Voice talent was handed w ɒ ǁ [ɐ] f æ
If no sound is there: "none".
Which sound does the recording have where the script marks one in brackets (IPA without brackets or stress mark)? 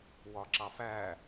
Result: ɑ